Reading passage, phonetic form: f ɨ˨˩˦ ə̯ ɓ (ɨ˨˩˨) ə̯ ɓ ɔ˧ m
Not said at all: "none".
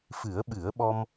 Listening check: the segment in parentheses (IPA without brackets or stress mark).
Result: ɨ˨˩˦